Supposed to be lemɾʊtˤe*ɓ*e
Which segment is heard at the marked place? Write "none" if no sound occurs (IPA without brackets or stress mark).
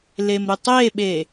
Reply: ɓ